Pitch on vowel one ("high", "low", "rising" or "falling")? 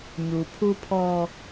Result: low